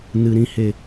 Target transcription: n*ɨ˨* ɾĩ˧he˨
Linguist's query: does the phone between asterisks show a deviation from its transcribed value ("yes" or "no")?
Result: no